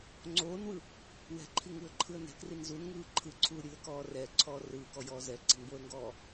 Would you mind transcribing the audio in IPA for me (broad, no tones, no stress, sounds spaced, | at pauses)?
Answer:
ŋ͡ǀ oː n w ɯ | w ɛ̤ ǃʰ i ŋ ɯː ə̯ ǃʰ ɯ ə̯ n ɛ̤ k r i n z u n ŋ ɯː ǃʰ ɯ ǀʰ uː ɾʲ uː ə̯ k ɔː r ɛː ǀʰ ɔː r ɯː k ɔ j ɔː z ɛ ǀ i̤ n b o ə̯ ŋ ɡ ɔː